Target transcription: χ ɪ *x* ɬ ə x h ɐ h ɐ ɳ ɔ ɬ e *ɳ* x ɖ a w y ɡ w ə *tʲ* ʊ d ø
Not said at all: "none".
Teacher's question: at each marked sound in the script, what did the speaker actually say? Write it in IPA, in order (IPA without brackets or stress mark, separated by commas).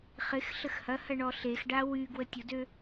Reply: x, none, tʲ